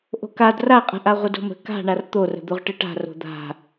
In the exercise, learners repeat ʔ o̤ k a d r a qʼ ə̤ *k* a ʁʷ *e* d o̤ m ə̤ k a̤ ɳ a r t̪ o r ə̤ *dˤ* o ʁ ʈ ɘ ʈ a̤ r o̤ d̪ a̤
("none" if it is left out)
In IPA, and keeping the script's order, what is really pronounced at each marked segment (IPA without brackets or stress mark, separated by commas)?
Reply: ʔ, ɘ, d̪